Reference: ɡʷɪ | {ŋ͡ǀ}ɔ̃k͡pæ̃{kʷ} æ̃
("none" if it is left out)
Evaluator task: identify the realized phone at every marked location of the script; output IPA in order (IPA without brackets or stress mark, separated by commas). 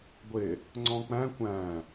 ŋ͡ǀ, kʷ